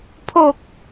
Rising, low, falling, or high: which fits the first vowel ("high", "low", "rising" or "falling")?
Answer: low